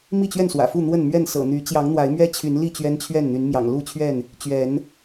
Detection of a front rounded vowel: present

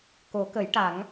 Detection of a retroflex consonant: present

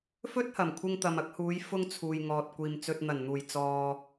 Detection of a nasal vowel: absent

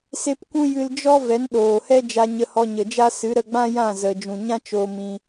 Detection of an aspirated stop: absent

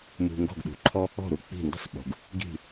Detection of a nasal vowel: absent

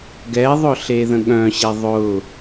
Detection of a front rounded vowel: present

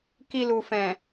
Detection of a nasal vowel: present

